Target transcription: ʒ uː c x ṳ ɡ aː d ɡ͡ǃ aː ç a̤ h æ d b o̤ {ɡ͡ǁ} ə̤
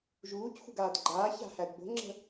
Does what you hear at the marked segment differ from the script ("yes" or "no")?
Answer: yes